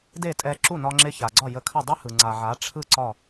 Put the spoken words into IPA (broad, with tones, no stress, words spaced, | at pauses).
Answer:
de˥˩tʼɛ˧ ǁu˥˩nɒ˧ŋ͡ǁɪ˧ ça˩ɡ͡ǀɒ˥˩ jə˧kʰə˥˩ dˤɪ˥hɯ˩ ŋ͡ǀa˩ʕa˩˥ʈ͡ʂʰɯ˥˩ ǀɒ˥˩